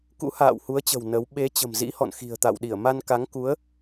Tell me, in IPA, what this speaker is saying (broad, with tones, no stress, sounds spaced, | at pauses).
k ṵ˧˥ h a̰ː˧˨ w h u˨˦ ə̯ t͡ɕ ə̤˨˩ w n ə˨˦ w ɓ e˨˦ t͡ɕ ə̤˨˩ m z ḭ˧˥ h ɔ̰˧˨ n x i̤˨˩ ə̯ t̪ a̰˧˨ w ɗ i˧˩ ə̯ m a˧ n k a˨˦ ŋ k u˨˦ ə̯